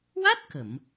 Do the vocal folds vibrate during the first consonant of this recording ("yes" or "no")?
yes